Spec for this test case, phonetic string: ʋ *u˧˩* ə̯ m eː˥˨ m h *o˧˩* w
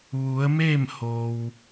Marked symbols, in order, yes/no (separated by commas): no, no